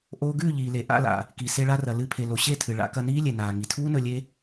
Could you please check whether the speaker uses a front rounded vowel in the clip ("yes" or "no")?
no